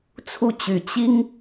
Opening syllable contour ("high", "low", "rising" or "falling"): falling